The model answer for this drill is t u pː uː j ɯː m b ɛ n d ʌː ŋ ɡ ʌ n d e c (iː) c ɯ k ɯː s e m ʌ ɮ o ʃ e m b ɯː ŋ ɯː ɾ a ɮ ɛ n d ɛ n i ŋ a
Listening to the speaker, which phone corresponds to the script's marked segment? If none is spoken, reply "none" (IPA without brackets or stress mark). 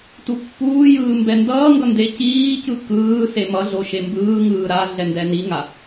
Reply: iː